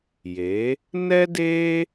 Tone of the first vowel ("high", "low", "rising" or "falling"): rising